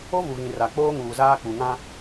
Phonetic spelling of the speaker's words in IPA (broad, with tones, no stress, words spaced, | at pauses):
o˦vu˨ɣĩ˨ ra˨k͡poː˦ ŋuː˨zaː˦k͡pu˨ ŋã˦